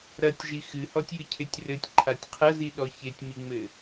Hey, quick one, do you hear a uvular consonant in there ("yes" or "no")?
yes